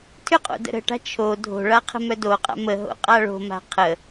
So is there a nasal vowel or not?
no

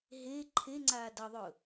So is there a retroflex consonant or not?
no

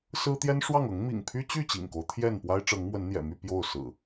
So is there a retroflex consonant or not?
yes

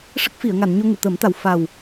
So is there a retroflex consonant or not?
yes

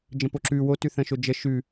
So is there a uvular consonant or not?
no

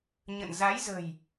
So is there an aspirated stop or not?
no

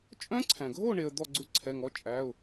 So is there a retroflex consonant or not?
yes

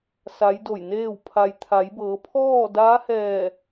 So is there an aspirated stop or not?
yes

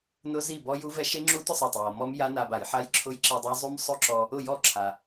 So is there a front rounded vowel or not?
no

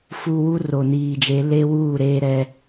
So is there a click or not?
no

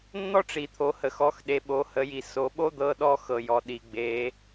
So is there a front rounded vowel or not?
no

